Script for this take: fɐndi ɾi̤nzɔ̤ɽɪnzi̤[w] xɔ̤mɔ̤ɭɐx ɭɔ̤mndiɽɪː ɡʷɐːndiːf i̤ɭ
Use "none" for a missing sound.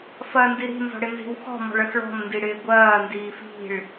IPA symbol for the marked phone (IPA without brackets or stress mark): w